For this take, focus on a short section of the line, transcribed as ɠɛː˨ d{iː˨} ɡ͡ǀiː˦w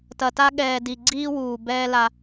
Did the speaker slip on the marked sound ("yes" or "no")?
yes